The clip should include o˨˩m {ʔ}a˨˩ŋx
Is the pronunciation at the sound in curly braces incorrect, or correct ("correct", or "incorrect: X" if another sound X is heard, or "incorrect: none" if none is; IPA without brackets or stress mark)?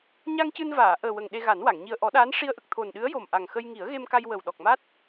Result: correct